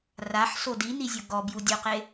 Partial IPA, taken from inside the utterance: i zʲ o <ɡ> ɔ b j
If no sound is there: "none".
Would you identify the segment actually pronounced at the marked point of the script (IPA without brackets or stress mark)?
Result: ɡ